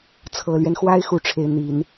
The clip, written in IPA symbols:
t͡sʰ ɤ˨˩ l ɥ ɛ˦ n x w a˥ ɪ̯ x u˥˩ ʈ͡ʂʰ e˧˥ ɪ̯ n̪ i˨˩˦ n

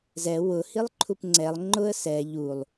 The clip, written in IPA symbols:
z ɛ w ʊ h i lˠ ǃʰ u p ŋ͡ǀ ɛ lˠ ŋ͡ǃ ʊ ə̯ s ɛ ʎ u lˠ

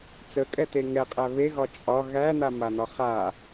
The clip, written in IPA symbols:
t͡s ə kʼ ɛ t̪ e ŋ ɛ qʼ æ β e ɣ ɒ t͡ʃʼ ɒ ɣ æ n̪ a m a n̪ ɒ χ a

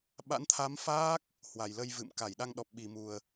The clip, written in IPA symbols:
ɓ a̰˧˥ n t̪ʰ a˨˦ m f aː˦˥ k̚ | h w a˨˩ j l ə˧ j v ɨ̰˧˨ m k a˧˩ j ɗ a˧ ŋ ɗ ɔ˨˩ p̚ ɓ i˨˩ m u˨˩ ə̯

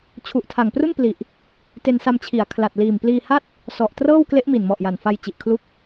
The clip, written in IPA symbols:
t͡ɕʰ u˨˩ ʔ tʰ a˨˩ ŋ p r u˥˩ n p l i˨˩ ʔ | t e˧ n s a˧ m t͡ɕʰ i˩˦ a̯ kʰ l a˨˩ t̚ l iː˨˩ m p l iː˧ h a˥˩ t̚ | s ɔ˨˩ ʔ t r ɤː˥˩ w k l e˦˥ ʔ m i˨˩ n m ɔ˨˩ ʔ j a˨˩ n f a˧ j t͡ɕ i˨˩ ʔ kʰ l u˦˥ k̚

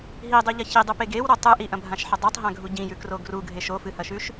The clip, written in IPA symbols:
ɦ i dˤ ʉ ʎ ɐ ç i dˤ u p e ɡ e w ɾ o tˤ ɨ ʔ i ʔ ɐ̃ bʱ ã ʃ ħ ɐ dˤ a tˤ ɦ ã ɡʱ u ɟ ĩ j ʉ k r o ɡ r u ɡʱ e ʃ o f ɨ h ɐ ʃ ʉ ʃ

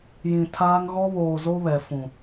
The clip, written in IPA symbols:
j ĩ˨ tʰ aː˦ ŋ ɣ ɔ˦ β oː˨ z o˦ β ɛ˨ f ũ˨

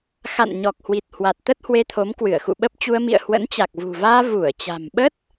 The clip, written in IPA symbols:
x a̰˧˨ n ɲ ɔ˨˩ k̚ h w i˨˩ t̚ h w a˨˩ t̚ t̪ ə˦˥ t̚ h w e˧ t̪ʰ o˨˦ m k w ɨ˧˩ ə̯ x ṵ˧˨ ɓ ə˦˥ p̚ t͡ɕ u˧ ə̯ m ḭ˧˨ ə̯ h w ə̰˧˥ n t͡ɕ a˨˩ k̚ v ṳ˨˩ v aː˧ v u˧˩ ə̯ t͡ɕ a̤˨˩ m ɓ ə˦˥ t̚

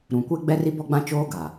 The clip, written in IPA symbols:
ɾ ũ˨ kʷ e˦ ɡ͡b ɛ˦ r i˦ b ɔ˦ ɡ͡b ã˦ t͡ʃ oː˦ ɡ a˨

